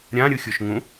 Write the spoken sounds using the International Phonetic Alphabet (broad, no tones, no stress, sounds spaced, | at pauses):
ɾʲ ã ɾʲ ɯ xʲ o ʃ ŋ ũ